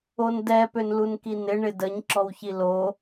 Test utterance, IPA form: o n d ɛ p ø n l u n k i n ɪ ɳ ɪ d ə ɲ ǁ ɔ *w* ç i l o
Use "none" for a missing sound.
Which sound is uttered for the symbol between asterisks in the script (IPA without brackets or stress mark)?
w